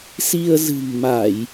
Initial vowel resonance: oral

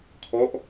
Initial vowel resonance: oral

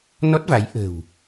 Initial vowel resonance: oral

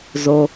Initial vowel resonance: oral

